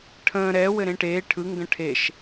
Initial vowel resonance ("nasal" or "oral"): nasal